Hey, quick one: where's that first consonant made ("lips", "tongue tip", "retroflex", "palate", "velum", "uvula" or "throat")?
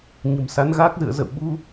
palate